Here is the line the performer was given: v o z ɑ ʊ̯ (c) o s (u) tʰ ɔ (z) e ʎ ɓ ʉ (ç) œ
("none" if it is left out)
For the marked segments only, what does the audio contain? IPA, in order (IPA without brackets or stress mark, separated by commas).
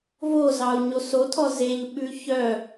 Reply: ɲ, o, z, ç